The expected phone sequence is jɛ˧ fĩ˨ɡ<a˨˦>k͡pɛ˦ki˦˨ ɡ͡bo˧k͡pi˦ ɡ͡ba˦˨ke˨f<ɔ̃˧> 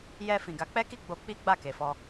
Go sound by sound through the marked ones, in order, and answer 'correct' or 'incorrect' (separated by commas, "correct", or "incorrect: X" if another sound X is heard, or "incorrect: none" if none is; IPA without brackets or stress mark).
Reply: correct, incorrect: ɔ˧